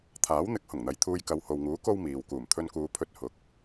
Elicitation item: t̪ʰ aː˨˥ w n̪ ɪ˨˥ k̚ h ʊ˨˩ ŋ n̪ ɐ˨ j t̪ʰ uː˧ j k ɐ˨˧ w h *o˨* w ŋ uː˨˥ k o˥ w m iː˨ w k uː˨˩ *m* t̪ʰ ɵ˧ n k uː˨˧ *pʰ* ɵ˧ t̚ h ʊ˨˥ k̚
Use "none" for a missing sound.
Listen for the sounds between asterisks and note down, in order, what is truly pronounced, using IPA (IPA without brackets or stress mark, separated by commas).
o˨, m, pʰ